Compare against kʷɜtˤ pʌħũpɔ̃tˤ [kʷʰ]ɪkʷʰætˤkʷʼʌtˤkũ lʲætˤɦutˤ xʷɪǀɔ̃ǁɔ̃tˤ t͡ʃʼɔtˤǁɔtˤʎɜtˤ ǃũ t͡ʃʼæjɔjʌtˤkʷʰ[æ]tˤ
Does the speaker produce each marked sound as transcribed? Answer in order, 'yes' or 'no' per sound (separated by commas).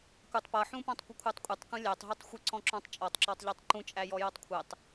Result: no, no